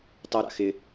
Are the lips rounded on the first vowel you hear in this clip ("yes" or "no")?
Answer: yes